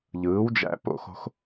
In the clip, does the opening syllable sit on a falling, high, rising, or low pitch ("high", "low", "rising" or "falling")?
rising